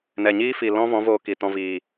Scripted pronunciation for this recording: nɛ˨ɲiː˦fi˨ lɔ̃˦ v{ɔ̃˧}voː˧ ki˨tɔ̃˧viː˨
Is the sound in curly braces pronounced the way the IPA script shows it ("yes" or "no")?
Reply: no